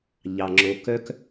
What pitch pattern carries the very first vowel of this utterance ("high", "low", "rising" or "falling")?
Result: low